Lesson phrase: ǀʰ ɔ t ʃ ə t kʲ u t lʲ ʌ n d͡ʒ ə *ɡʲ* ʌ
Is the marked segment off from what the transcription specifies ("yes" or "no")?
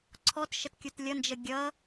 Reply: no